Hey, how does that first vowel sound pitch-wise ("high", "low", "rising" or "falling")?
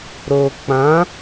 low